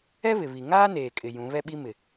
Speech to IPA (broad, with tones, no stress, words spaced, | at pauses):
ɛ˦βɪ˨βi˨ ŋaː˦neː˨kʼɪ˨ jũ˨˦βɛ˦ɓi˦mɪ˨